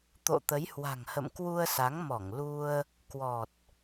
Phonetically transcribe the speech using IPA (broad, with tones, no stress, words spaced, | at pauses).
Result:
t̪o̰˧˨t̪ə˨˦jhwa̤˨˩ŋhə̰˧˨m kwu˧ə̯sa˨˦ŋmɔ˧˩ŋ lu˧ə̯ | kwɔ˨˩t̚